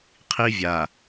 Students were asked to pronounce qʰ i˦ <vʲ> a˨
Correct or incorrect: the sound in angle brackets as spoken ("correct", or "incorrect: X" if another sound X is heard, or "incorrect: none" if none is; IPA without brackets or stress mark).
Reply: correct